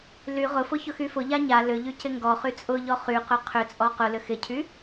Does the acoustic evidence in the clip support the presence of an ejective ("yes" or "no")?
yes